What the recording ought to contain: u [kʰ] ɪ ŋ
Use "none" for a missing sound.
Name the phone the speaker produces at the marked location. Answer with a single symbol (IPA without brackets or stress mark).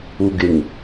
ɡ